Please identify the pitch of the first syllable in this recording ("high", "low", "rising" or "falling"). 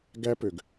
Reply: high